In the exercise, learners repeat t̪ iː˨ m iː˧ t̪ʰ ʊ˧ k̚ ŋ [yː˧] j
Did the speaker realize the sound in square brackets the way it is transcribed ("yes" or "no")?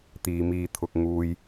no